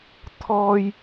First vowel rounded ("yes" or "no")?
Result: yes